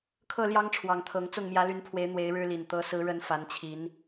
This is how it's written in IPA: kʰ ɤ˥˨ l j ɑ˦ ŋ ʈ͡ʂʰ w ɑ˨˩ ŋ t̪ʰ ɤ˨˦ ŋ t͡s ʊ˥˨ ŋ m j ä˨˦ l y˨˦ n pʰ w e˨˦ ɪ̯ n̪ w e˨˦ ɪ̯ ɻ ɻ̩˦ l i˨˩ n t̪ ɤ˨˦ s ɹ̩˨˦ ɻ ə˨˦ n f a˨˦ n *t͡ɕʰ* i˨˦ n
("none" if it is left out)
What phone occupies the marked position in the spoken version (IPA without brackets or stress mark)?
t͡ɕʰ